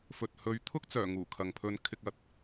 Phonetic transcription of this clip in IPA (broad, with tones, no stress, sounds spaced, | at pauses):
f ɵ˨ t̚ h ɵ˨˧ ɥ t̪ʰ ʊ˥ k̚ t͡s œː˨˩ ŋ uː˨˩ kʰ ɐ˨ ŋ pʰ ɵ˧ n kʰ ɪ˧ k̚ ɐ˨˥ t̚